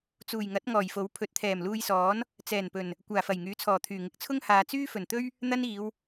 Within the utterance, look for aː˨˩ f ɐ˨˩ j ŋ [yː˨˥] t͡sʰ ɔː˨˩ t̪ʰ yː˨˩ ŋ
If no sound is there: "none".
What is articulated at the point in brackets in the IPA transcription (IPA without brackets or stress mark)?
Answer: yː˨˥